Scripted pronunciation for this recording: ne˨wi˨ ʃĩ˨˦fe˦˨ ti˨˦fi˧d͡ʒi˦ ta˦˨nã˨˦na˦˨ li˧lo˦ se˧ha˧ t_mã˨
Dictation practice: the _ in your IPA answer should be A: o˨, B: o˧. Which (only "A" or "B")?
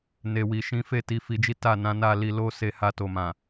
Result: A